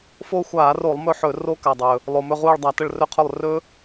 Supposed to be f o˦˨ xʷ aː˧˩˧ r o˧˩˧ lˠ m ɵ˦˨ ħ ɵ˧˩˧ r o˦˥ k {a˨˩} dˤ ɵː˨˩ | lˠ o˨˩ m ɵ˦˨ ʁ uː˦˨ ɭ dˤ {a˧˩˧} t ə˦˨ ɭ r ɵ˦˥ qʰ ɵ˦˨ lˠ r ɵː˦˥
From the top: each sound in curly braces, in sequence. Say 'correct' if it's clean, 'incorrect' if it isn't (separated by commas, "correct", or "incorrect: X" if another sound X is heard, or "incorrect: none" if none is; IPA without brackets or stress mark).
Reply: correct, correct